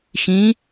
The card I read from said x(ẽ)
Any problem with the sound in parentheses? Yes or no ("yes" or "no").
yes